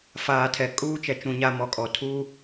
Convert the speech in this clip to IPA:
f aː˨ tʰ ɛ˨ kʼ uː˦ t͡ʃ ɛ˨ t͡ʃ ũ˨ ɲ a˨ m ɔ˨ kʼ ɔ˨ tʰ uː˦

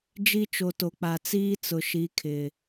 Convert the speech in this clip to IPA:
d͡ʒ i˦ t͡ʃ o˨ t o˨ k͡p a˨ t͡s iː˦ t͡s ʊ˨ ʃ i˨˦ kʰ ɪ˨

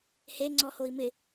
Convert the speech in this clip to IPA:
h e ŋ͡ǀ ɔ h o i̯ m ɪ

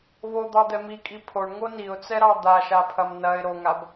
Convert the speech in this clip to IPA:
β o d̪ ɑ d̪ ɛ m i kʼ i pʰ o ɳ ŋ o n i ʊ̯ t͡s ɛ ɾ ɑ d̪ a ʃ a pʰ ɐ m n ɐ ɪ̯ ɾ o ŋ a b

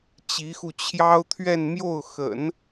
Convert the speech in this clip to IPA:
t͡ɕ i˧˥ x u˧ t͡ɕʰ j ɑ˥ ʊ̯ t̪ʰ ɥ ɛ˥˧ n m j o˥˩ ʊ̯ x ə̰˨˩˦ n

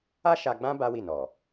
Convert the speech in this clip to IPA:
a˦ ʃ a˧ ɡ͡b ã˦ b a˦ w i˦˨ n ɔ˨

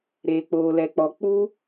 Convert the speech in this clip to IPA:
ɾ eː˨ k͡p oː˨ l ɛ˨ k͡p ɔ˨ k͡p u˦

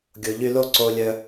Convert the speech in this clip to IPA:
ɡʲ o˨ ʎ y˧ l o˦ ǀ o˧ lʲ œ˧

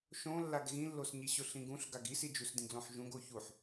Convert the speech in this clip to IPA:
ʃ õ lː a ɡ ɣ ĩ lː o s ɲ i ɕ ʊ ɬ ĩ ɡ ũ ɬ ɡ a ɡ i s i d͡ʒ u s d ĩ ɡ l õ ħ ʒ ũ ɡ o ç u ħ

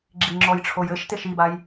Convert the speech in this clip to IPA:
ɡ͡ǁ i ŋ͡ǁ ɔ j ʈ͡ʂʰ o j ɘ ʃ t e ʃ i b a j

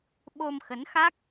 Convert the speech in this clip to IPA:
ɓ o˧ m x ə˨˦ n x a˦˥ k̚

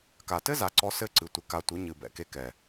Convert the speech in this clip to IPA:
k a˨ t ɘ˦ z a˨ ǀ ɔ˧ s ɘ˦˨ ǀ ɨ˨ tʷ ɨ˨ k a˧ tʷ ɨ˨˦ ɲ ɨ˨ b ɛ̰˧ k e˦ k ɛ˨

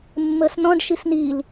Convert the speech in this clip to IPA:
mː əː s n ɔ̃ ɖ ʃ i s n i l

